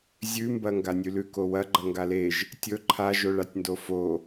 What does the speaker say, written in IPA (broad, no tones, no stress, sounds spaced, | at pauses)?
zʲ ʉ m b ɐ ŋ ɡ a nʲ ʉ l ʉ k o w ɐ ɡ͡ǃ ɐ ŋ ɡ a l e ʒ | tʲ ɵ ǃʰ a ʒ o ɭ a tʲ n d o f o